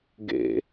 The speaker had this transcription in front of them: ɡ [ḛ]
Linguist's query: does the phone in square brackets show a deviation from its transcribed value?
no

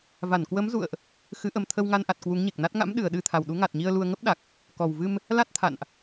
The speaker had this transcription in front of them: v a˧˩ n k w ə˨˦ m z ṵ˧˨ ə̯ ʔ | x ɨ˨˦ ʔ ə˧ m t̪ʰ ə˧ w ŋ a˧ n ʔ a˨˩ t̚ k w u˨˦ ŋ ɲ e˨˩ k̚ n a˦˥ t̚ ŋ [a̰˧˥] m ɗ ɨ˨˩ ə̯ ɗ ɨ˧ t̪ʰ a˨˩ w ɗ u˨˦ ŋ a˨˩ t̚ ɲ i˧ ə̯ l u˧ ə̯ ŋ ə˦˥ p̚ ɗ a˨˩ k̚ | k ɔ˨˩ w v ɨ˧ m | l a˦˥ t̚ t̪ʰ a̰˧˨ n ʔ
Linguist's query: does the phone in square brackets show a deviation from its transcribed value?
no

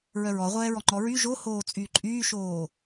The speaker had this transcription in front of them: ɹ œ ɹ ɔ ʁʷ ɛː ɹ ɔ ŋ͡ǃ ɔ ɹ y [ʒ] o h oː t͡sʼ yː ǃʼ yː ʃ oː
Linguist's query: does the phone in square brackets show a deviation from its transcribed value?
no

